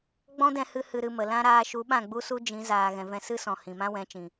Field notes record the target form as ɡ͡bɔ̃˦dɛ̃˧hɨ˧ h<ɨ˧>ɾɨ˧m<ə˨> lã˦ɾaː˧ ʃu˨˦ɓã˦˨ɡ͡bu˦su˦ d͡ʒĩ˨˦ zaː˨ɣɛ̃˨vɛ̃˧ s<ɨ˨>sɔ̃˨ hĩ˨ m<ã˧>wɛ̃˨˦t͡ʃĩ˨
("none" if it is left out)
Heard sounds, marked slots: ɨ˧, ə˨, ɨ˦, ã˦

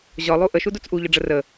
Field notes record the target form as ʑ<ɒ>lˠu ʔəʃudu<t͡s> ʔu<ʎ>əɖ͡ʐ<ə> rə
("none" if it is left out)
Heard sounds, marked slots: ɒ, t͡s, ʎ, ə

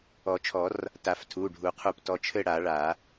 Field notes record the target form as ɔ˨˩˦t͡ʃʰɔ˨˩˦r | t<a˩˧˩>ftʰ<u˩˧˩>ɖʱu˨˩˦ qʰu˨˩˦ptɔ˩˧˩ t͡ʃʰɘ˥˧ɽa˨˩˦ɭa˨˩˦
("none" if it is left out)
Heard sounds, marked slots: a˨˩˦, u˩˧˩

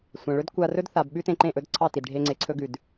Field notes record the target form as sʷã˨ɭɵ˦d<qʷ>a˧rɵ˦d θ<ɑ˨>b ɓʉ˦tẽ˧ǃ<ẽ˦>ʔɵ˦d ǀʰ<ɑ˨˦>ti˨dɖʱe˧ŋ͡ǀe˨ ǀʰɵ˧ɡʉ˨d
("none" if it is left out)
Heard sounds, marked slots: kʷ, a˨, ẽ˦˨, ɑ˦˨

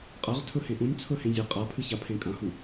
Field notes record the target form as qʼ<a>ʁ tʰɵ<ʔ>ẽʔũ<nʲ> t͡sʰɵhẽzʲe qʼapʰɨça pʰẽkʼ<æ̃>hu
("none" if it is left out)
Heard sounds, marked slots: ɐ, h, nʲ, ɐ̃

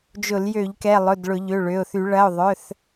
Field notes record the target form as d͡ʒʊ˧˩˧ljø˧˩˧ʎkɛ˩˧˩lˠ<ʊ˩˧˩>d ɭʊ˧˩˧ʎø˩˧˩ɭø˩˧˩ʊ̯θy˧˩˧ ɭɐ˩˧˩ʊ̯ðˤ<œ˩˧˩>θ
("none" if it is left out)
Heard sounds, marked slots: ʊ˩˧˩, œ˩˧˩

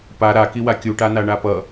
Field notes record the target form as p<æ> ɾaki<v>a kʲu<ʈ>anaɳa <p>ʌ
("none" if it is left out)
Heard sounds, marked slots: a, w, ʈ, p

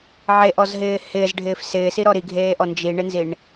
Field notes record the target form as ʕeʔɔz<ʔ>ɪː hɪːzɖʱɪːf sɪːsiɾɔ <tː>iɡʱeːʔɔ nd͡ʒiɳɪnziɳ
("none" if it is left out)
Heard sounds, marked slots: ɦ, ɾ

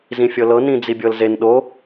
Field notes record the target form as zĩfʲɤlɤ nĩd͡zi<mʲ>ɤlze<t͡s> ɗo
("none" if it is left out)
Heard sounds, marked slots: bʲ, n

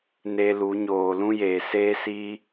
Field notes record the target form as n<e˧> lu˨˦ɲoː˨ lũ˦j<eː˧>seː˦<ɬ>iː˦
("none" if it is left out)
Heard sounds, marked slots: e˧, eː˨, s

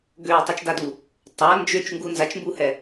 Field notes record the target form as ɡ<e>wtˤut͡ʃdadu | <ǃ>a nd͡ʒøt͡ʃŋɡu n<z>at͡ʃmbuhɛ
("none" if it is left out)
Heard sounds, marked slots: ø, tˤ, z

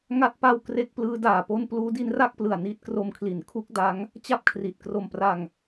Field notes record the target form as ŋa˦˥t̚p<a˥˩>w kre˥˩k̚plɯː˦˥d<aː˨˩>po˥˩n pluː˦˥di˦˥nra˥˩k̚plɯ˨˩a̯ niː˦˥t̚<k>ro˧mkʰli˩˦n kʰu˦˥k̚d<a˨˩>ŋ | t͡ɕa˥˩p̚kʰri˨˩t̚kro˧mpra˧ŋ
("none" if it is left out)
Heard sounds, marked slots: a˧, aː˨˩, k, a˦˥

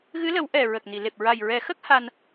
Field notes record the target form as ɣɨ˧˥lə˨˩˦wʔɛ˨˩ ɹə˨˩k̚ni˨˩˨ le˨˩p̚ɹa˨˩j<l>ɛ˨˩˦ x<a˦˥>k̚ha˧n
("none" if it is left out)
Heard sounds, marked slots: ɹ, ə˦˥

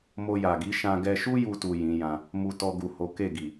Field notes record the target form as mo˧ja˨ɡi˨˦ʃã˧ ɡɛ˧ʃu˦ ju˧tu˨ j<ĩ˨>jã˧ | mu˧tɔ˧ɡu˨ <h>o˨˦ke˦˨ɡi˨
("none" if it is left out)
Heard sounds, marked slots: ĩ˨˦, h

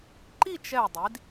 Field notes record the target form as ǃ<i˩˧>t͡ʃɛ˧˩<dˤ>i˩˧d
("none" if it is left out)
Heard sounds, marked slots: i˥˧, dˤ

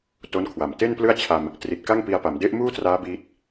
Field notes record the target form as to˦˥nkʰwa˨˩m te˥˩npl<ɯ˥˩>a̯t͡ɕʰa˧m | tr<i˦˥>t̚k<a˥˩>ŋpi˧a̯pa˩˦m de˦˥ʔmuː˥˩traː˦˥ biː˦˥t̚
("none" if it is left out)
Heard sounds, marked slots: ɯ˥˩, i˨˩, a˥˩

